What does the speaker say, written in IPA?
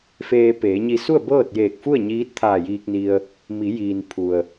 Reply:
f eː˧ p eː˩˧ ɲ i˧ s u˥˨ ə̯ b ɤː˥˨ t̚ j eː˧˩ k̚ f u˥˨ ə̯ ɲ iː˧˥ t̚ t̪ʰ aː˧˩ j iː˧ k̚ n i˧ ə̯ | m i˩˧ j iː˩ n pʰ u˩ ə̯

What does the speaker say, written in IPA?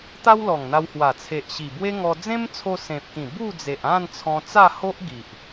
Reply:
t̪ a˦ w l ɔ˨˩ ŋ n̪ a˧ w h w a˨˩ t͡sʰ e˨ ʔ ɕ i˨˩ b w e˦ ŋ ɔ˧ d͡z ẽ˦ m t͡sʰ o˧ s ẽ˨ p̚ k ĩ˨˩ b u˥˧ d͡z e˨ ʔ ã˥˧ n t͡sʰ ɔ̃˧ t͡s a˥˧ h o˦ ʔ ɡ i˨ ʔ

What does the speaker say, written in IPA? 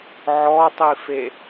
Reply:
ʕ ɔ tˤ i f e

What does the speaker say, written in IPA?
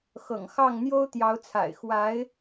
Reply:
x ɤ̰˨˩ ŋ x ɑ˥˩ ŋ n̪ j o˥ ʊ̯ t̪ j ɑ˧˥ ʊ̯ t͡sʰ a̰˨˩ ɪ̯ x w a˧˥ ɪ̯

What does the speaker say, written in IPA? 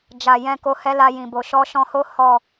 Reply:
d͡ʒ a˨ j ɛ̃˧ k o˧ h ɛ˦ l a˧ j ĩ˨ b o˨ ʃ ɔ˧ ʃ ɔ̃˧ h o˦ h ɔ˦˨

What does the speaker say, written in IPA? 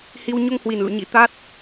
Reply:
h i˧ w ɲ o˧ ŋ h w i˨˩ n l ṵ˧˨ ɲ ḭ˧˥ t̪ a˦˥ t̚

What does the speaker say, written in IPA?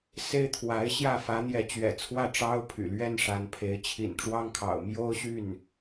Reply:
s e˥ ɪ̯ t̪ʰ w a˧˥ ɪ̯ ɕ j ä˥˩ f ä˧˥ n̪ j ɛ˧˥ t͡ɕ ɥ ɛ̰˨˩ t͡sʰ w ä˥˩ ʈ͡ʂ ɑ˥ ʊ̯ pʰ y̰˨˩ l ɥ ɛ˥ n ʂ a˧˥ n pʰ e˧˥ ɪ̯ t͡ɕʰ ḭ˨˩ n ʈ͡ʂ w ɑ˥ ŋ kʰ ɑ̰˨˩ ʊ̯ m j o˥ ʊ̯ ɕ y˥˩ n

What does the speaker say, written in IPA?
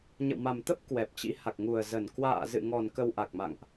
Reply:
ɲ ə̰˧˨ w m a˨˩ m t̪ ə˦˥ p̚ k w ɛ˨˩ p̚ t͡ɕ ḭ˧˥ h a˨˩ k̚ ŋ u˨˩ ə̯ z ə˨˩ n k w a̰ː˧˨ z ɨ̰˧˨ ŋ ɔ˨˩ n k ə˧ w ʔ a˨˩ k̚ m a̰˧˨ ŋ ʔ

